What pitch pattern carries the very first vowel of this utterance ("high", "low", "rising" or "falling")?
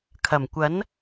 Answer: low